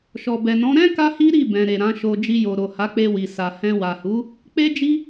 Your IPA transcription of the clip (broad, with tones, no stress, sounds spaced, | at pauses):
ʃ ɔ˨ b ɛ˨ n ɔ̃˨˦ ɾ ɛ̃˦ k a˦ h i˦ ɾ i˦˨ b ɛ̃˨ ɾ e˨ ɾ ã˨˦ ʃ o˧ d͡ʒ i˧ j o˨ ɾ o˨ h a˨˦ k͡p e˧ w i˨ s a˨ h ɛ̃˧ w a˨ h u˨˦ | k͡p e˦ d͡ʒ i˦